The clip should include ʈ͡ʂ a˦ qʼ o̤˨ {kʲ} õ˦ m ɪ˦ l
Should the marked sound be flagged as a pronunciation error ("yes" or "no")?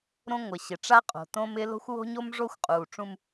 yes